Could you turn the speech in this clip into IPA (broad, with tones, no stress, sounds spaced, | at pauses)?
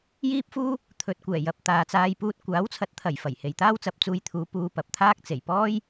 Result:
j iː˥ p̚ f uː˥ | t̪ʰ ɵ˨ t̚ kʷ ɛː˨˩ j ɐ˨ p̚ t̪ aː˨ t͡s aː˧ j p uː˧ t̚ kʷ aː˨˥ w t͡sʰ ɐ˨˥ t̚ t̪ʰ ɐ˨˩ j f ɐ˨˩ j h e˨ j t̪ aː˥ w t͡s ɐ˨˥ p̚ t͡s uː˧ j t̪ʰ uː˨˧ p uː˧ p ɐ˨ p̚ t̪ʰ aː˥ k̚ t͡s e˨˩ j p ɔː˥ j